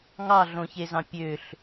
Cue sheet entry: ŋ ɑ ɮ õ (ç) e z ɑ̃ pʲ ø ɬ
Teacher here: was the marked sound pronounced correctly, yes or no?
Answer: yes